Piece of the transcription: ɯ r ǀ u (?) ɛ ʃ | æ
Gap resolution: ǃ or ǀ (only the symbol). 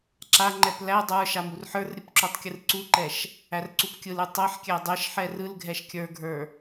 ǃ